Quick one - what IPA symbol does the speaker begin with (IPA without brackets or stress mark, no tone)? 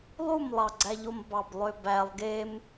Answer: lˠ